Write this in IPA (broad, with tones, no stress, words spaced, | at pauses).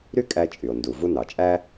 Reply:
ɾy˥ kʼæ˧t͡ʃʼy˩o̯ ndu˩vu˧ nɑ˩t͡ʃʼæ˥